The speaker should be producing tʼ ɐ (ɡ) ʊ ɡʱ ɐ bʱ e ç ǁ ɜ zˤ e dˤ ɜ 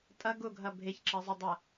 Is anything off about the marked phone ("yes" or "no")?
no